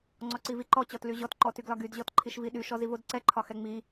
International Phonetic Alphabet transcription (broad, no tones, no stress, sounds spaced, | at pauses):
ŋ͡ǀ ɔ ǀ i v i ǃ ɔ t͡ɕ ɔ t l y ʑ ɔ t ǃ ɔ t y ɡ l ɒ ɡ y d ʑ ɔ t ǃʰ i ʃ v i ɗ y ʃ ɔ z i v o d ǀ ɛ ǃʰ ɒ x ɛ ŋ͡m i